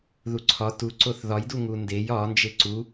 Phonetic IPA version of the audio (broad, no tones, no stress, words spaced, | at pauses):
ðuǀʰɒ tu ǀoθðɒjdu ŋundej ɒnd͡ʒe ǀu